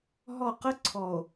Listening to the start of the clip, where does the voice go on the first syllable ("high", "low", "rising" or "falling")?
falling